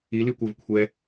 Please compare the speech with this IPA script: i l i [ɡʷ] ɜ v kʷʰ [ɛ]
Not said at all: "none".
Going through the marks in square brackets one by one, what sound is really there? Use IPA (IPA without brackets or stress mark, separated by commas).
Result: kʷ, ɛ